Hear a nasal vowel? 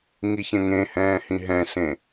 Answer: yes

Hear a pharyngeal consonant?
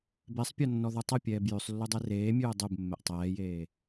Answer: no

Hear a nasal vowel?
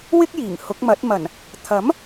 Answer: no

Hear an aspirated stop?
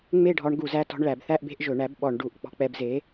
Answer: no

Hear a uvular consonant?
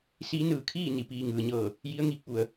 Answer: no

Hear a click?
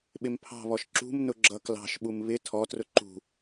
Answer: yes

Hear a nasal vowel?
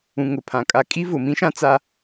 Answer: yes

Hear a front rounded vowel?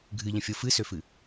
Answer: yes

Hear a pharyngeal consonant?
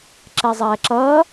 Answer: no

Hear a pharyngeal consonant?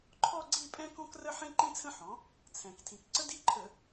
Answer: yes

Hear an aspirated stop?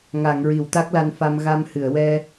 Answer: no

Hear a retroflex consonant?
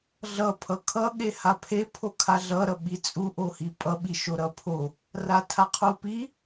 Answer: no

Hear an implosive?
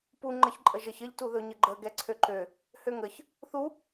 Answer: no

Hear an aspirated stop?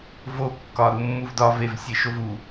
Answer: no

